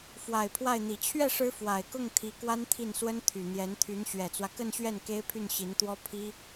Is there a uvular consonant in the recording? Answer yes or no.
no